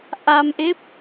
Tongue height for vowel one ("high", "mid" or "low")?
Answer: low